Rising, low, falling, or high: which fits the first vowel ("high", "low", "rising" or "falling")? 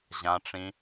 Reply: low